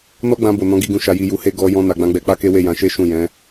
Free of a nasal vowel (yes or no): no